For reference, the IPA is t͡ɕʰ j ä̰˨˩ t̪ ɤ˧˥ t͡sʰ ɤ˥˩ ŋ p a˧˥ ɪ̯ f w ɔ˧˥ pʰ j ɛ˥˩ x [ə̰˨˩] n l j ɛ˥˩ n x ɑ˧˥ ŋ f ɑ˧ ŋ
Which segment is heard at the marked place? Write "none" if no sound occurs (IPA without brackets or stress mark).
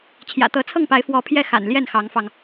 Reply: a̰˨˩